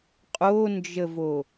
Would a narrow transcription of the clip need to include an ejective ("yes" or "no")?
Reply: yes